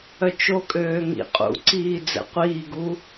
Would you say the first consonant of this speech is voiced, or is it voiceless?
voiceless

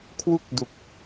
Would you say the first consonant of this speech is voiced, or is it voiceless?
voiceless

